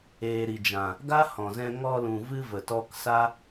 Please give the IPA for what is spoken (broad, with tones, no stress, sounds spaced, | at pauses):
eː˨ ɾ i˨ d͡ʒ ã˨ | ɡ a˦ h ɔ̃˨ z ɛ̃˧ ŋ ɔ˧ l ũ˨ v ɨ˧ v ə˨ t ɔ˧ k s a˦